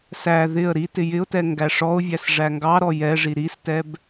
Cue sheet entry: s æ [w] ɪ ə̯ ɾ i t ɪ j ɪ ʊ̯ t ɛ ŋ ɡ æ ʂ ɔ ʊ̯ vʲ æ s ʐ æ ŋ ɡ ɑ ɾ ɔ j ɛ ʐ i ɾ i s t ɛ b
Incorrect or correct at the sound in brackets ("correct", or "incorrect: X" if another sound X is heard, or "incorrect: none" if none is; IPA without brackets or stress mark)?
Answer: incorrect: ð